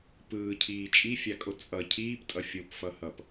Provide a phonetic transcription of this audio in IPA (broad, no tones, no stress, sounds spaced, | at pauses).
p ɯː cʰ iː t͡ʃʼ i fʲ a kʼ o t͡sʼ ʌ cʰ iː p tʼ ʌ fʲ o p f ʌ h ʌ p